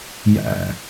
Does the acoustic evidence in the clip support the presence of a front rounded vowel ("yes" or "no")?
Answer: no